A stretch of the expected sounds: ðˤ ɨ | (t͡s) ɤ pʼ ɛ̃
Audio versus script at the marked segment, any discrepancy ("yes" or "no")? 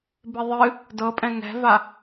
yes